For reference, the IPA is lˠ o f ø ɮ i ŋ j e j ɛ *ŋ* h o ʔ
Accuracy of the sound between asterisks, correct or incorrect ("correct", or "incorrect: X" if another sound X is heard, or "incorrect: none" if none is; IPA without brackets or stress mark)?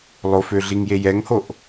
correct